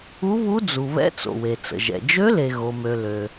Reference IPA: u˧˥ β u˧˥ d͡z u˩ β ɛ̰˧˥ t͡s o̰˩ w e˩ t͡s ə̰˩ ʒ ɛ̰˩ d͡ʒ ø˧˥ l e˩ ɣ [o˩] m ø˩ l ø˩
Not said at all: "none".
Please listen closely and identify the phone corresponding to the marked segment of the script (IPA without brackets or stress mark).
o˩